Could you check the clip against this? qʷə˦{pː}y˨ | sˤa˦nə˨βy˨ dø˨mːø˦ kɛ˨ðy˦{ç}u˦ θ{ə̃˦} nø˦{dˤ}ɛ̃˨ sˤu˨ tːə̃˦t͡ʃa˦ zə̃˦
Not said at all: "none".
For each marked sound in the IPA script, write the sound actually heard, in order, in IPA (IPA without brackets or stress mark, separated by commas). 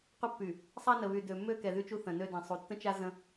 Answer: pː, t͡ʃ, ə̃˨, d